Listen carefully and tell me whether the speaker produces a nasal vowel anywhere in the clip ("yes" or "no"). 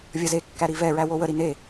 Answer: no